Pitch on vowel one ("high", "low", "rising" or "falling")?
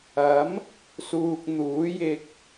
rising